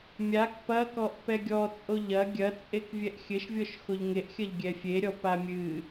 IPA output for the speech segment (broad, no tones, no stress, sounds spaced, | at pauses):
mʲ a k p ɐ k ɔ ʔ p ɛ ɡʲ ɔ t͡sʼ o ʎ ɐ ɡʲ ɐ t͡sʼ e k vʲ ɛ ʔ xʲ ɘ ʃ vʲ ɔ ʃ x o ʎ ŋ e ʔ xʲ ɐ ʎ ɡʲ ɛ fʲ e ɾʲ ɔ p a mʲ ɨ